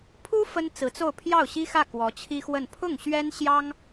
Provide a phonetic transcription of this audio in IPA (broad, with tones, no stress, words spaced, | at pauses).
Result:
pʰu˥ fə˥nt͡sɹ̩˧˥t͡so˥˧ʊ̯ pʰjɑ˥˩ʊ̯ɕi˥xä˥˩ kwɔ˧˥t͡ɕʰi˥xwə˥˧n pʰʊ˥˩ŋɕɥɛ˥nɕjɑ˥ŋ